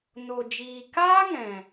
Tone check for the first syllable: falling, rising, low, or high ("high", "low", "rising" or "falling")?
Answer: low